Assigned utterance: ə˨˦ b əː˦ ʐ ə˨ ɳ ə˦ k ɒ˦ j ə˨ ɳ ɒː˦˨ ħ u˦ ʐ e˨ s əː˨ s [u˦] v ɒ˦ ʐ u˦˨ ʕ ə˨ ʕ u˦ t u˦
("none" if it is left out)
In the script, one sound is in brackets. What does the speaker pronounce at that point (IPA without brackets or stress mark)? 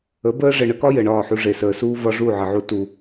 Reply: uː˦